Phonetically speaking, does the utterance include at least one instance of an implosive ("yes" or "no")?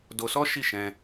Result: no